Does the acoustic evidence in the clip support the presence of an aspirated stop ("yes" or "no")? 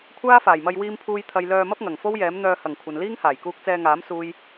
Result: yes